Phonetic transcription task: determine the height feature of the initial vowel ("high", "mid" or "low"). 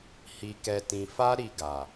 high